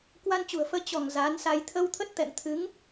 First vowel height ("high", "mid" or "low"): low